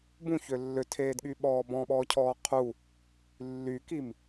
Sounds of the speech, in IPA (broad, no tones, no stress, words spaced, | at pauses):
bũçø lːøtʰeːdɠyɓɔː bɔ̃ɓɔːcʰɔː qʰu | lːykim